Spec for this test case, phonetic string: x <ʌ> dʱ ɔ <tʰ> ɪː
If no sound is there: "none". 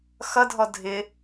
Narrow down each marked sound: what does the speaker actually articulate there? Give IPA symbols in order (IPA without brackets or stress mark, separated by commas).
ʌ, dʱ